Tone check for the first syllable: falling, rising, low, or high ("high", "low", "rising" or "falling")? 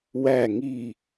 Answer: low